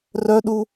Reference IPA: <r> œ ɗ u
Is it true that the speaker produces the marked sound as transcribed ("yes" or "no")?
yes